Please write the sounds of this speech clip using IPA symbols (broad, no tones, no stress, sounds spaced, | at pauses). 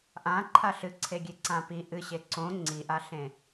ʔ ã ǃʰ a ɬ ɨ ǀʰ e ɡʲ e ǀ ã p i ʔ ɨ ɕ e ǀ õ ŋ͡ǀ i ʔ a ɬ ẽ